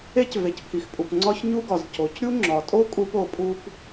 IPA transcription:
e˥ c v e˩ c pʰ i˩ x pʼ u˩ p ŋ͡ǀ ɒ˥ ç ɲ u˥ ɡ ɒ˩ z c o˩ c ɾʲ u˥ ŋ͡ǁ ɒ˩ tʼ o˥ kʼ u˥ p o˩ pʼ u˥ p

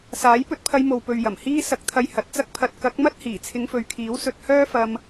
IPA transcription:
s aː˨˥ j p ɵ˧ t̚ pʰ ɐ˧ j m o˨ w p ɵ˨ ɥ j ɐ˨˩ m h iː˥ s ɐ˧ k̚ t̪ʰ ɐ˧ j h ɐ˨˥ t̚ t͡s ɐ˧ k̚ pʰ ɐ˨ t̚ k ɐ˨˥ k̚ m ɐ˥ t̚ h iː˨˩ t͡sʰ ɪ˨˧ ŋ f ɵ˨ ɥ kʰ iː˨˥ w s ɵ˧ t̚ h œː˥ f ɐ˧ m

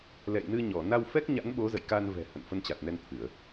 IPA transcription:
l ɛ̰˧˨ j n ɨ˧ ɲ ɔ˧˩ n a˧ w f ɛ˦˥ k̚ ɲ a̰˧˥ n ɓ o˨˦ z ə̰˧˨ j k a˧ n v ɛ̤˨˩ h ə̰˧˨ n f ə˧ n t͡ɕ a˨˩ t̚ n ɛ˧ n t̪ʰ ɨ˧˩˨ ə̯

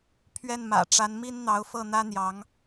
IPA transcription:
pʰ ɥ ɛ˥˩ n m ä̰˨˩ ʈ͡ʂ a˧˥ n m i˥ n n̪ ɑ˧˥ ʊ̯ f ɤ˥˩ n̪ ä˥ n̪ j ɑ˧˥ ŋ

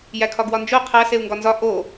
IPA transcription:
j æ kʰ ɒ ɡ w ɒ n d͡ʒ o qʰ æ s e u̯ ŋ ɡ ɒ n z ɒ ʔ o

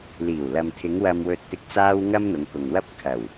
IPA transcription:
l iː˨˩ w l ɐ˨ m t̪ʰ ɪ˨˧ ŋ w ɐ˨ m w ɵ˨ t̚ t̪ ɪ˨˥ k̚ t͡s aː˧ w ŋ ɐ˥ m n̪ ʊ˨˧ ŋ k ʊ˨ ŋ w ɐ˥ p̚ kʰ ɐ˨˩ w

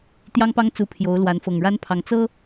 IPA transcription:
t̪ j ɑ˦ ŋ p ɑ˦ ŋ t͡s u˨˦ pʰ j o˨˦ ʊ̯ l w a˨˦ n f ɤ˨˩ ŋ ɻ a˦ n pʰ ɑ˨˦ ŋ t͡s ɤ˦

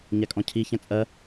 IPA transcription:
ɲ æ kʼ ɔ̃ cʰ i ç æ̃ t͡sʼ ɜ

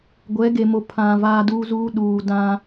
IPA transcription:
ɡʷ ɛ˨˦ ɡ e˨ m o˨ pʰ ã˨ v aː˦ d uː˦ z uː˦ ɗ uː˨ d ã˦

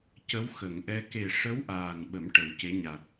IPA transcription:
c ə˧˥ w x ə˨˩˨ ŋ ʔ ɛ˧ k e˨˩ ʂ ə˧˥ w ʔ aː˨˩ n ɓ ə˨˩˦ m ʈ ə˨˩˦ w c e˧˥ ɲ a˨˩ t̚

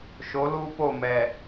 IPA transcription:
ʃ o˨˦ l uː˦ p o˦˨ m ɛ˨

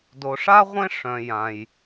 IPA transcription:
d o˨ ʂ a˥ ʁʷ ẽ˥ ʂ œ̃˨ j ã˨ j

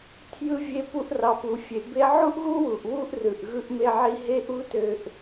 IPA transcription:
tʰ j ɯ˧ vʲ e˧ p u˧ ʔ r ɑ˩ p u˩ fʲ e˩ b e˥ ʕ u˥ ʔ ɣ u˥ w u˩ ʔ w u˥ ʔ r ɯ˩ ʔ ɣ ɯ˧ ʔ m e˧ ʕ i˧ ɦ e˥ ʔ u˥ t ø˧ ʔ

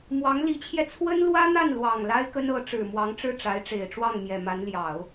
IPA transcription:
m w ɑ˧˥ ŋ l i˧˥ t͡ɕʰ j ɛ˧ t͡sʰ w ə˥ n l w ä˥ n̪ a˥˩ n l w ɑ˨˩ ŋ l a˥ ɪ̯ k ə˥ n ɤ˧˥ ʈ͡ʂ ɻ̩˨˩ m w ɑ˧˥ ŋ ʈ͡ʂ ɻ̩˥˩ ʈ͡ʂ a˧˥ ɪ̯ ʈ͡ʂ e˨˩ ɪ̯ ʈ͡ʂ w ɑ˥˩ ŋ m j ɛ˨˩ m a˧˥ n l j ɑ˨˩˦ ʊ̯

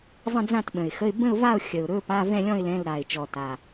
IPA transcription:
zˤ ə̃˥˧ d͡z ã˥˧ t ɓ ə̃˨˩ ɪ̯ x ə˧˥˧ ɪ̯ b ə̃˥˧ ʊ̯ v a˥˧ ʊ̯ xʲ ə˨˩ ʊ̯ ɾ ɵ˧˥˧ p a˧˥˧ v ɛ̃˥˧ lʲ ɔ̃˥˧ ɪ̯ l ɛ̃˧˥˧ l ɾ a˨˩ ɪ̯ t͡ʃ ɔ˨˩ t a˨˩

